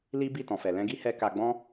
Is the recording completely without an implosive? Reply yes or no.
yes